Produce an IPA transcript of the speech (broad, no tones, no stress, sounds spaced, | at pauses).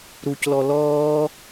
ɾ u c l ɔ l ɔː